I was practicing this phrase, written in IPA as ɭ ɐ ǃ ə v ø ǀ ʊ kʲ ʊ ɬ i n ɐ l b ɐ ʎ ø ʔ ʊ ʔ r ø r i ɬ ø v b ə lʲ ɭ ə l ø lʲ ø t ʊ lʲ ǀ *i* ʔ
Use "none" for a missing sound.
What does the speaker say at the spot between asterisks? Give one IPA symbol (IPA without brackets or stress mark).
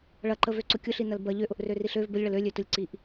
i